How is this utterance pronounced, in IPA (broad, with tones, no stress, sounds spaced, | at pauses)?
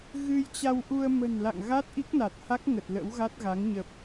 ɣ ɨ˧ j t͡ɕ a˧ w ʔ u˧ ə̯ m ə̤˨˩ n l a̰˧˨ ŋ ɣ a˦˥ t̚ ʔ i˦˥ k̚ n a˨˩ t̚ h a˦˥ k̚ ŋ ə˨˩ t̚ l ə̰˧˥ w ɣ a˦˥ t̚ ɣ a˨˦ ŋ ɲ ə˨˩ p̚